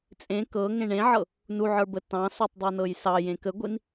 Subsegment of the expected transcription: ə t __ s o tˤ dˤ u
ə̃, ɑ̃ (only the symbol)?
ɑ̃